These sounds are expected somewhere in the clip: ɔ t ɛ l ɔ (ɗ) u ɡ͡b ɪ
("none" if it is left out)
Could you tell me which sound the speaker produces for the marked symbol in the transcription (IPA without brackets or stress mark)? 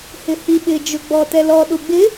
ɗ